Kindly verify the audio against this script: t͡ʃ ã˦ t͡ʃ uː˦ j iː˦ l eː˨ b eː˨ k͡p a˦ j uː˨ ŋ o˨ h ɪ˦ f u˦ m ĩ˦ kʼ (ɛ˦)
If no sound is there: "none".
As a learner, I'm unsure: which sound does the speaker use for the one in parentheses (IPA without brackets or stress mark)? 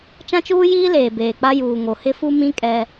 ɛ˦